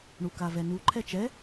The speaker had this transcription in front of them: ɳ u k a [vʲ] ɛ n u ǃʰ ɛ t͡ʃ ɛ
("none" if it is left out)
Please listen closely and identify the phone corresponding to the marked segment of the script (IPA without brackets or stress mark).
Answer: v